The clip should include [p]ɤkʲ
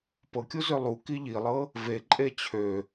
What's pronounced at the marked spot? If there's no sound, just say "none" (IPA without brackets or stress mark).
p